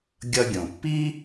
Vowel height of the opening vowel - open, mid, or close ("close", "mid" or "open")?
mid